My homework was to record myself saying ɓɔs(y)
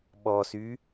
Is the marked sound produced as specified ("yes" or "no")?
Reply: yes